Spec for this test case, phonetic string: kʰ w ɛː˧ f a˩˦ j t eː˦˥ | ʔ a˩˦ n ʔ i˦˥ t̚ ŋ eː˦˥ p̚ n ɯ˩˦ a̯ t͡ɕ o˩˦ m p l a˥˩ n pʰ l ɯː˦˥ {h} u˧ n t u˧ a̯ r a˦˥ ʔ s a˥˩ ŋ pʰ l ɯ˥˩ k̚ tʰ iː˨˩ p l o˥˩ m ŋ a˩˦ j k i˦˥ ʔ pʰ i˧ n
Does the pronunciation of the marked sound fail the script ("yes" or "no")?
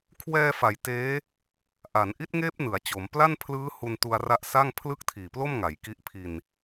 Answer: no